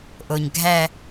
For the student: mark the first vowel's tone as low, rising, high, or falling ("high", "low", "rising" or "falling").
low